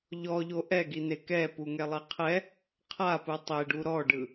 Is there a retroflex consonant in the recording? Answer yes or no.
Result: yes